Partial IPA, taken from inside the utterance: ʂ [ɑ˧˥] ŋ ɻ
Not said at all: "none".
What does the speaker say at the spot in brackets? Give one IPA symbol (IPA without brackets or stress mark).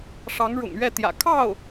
ɑ˧˥